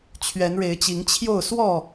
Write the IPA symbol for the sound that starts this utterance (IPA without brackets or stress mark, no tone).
t͡ɕʰ